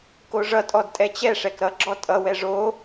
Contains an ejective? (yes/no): yes